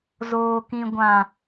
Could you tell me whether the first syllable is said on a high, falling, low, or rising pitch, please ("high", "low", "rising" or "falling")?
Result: low